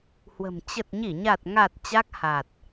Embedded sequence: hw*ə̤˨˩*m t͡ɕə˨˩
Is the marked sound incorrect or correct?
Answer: correct